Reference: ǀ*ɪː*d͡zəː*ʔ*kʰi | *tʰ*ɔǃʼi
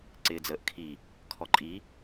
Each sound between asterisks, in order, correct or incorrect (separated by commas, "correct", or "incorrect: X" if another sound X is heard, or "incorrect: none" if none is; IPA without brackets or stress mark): correct, correct, incorrect: kʰ